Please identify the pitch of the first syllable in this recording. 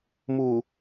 low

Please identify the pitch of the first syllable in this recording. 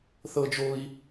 high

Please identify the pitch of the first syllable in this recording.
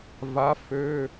rising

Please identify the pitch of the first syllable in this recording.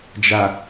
low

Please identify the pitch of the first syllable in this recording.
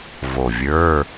low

